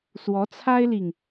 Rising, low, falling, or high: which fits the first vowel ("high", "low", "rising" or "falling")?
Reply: rising